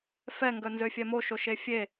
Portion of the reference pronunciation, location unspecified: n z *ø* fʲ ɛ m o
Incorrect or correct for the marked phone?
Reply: correct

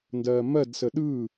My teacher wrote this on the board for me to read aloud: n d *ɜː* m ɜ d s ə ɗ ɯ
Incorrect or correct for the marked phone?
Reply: correct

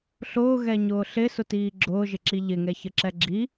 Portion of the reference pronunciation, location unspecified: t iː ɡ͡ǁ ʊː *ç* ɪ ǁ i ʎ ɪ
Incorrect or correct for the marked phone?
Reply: incorrect: ʒ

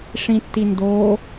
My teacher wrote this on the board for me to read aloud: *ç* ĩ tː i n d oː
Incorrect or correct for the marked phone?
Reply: incorrect: ʂ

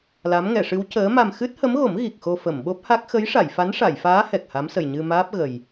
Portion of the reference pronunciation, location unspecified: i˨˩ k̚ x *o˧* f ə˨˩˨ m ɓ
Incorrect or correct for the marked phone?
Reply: correct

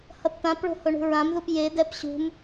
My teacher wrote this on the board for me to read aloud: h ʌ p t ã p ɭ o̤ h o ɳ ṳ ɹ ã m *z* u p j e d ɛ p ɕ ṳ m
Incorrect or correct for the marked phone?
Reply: incorrect: ð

